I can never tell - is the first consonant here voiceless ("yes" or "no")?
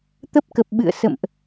yes